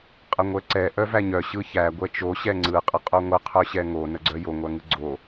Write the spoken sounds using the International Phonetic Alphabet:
qʼəŋʷɛǀɛ ʔœvæɲœ ɕɯçæ ɡʷɛt͡ʃo ɕɛŋ͡ǀɯ qʼəqʼoŋʷə qʰœɕɛŋo nəɡ͡ǀœjo ŋʷæŋɯɡ͡ǀo

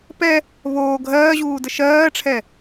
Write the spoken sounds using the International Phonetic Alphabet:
pɛ | βoː ɡʱɜːʑuːdə ʃɜːʈ͡ʂʰɛ

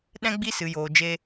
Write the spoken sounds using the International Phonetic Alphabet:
ɗɛ̃˦ɡ͡bi˦ sɨ˧joː˧d͡ʒe˦

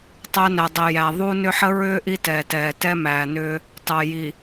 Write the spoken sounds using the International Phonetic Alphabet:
tˤæ˦næ˨dˤɛ˨ jæ˨ðˤu˦nʏ˦ ħə˦ɹʏː˦ ʔi˦tɛː˨tɛː˨tɛ˦ mæː˨nʏː˦ | tɑ˨ji˨

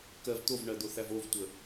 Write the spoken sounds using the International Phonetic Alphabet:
kɜv t̪ovɳɜd̪oθæv ovtʷə

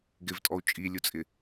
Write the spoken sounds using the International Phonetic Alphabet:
ɡɪvtʼɔu̯ t͡ʃʼilʲut͡sʼɪ

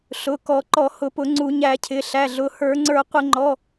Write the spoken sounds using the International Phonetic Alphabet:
ɬʊ˩˧˩kɔ˧˩˧ ǃɔ˧˩˧hʊ˧˩˧pʊ˧˩˧ ŋ͡ǀu˧˩˧ɲæ˧˩˧cʰɪ˩˧˩ ɬæ˩˧˩ɮʊ˩˧˩ hə˞˧˩˧ŋ͡ǀə˞˧˩˧qʷɪ˧˩˧ŋ͡ǃɔ˩˧˩

